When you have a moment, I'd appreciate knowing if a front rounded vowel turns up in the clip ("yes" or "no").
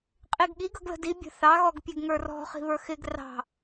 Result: no